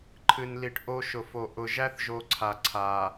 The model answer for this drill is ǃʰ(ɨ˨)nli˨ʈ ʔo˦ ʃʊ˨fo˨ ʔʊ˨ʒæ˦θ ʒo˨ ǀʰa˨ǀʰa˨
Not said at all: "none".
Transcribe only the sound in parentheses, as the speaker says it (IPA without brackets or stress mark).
ɨ˨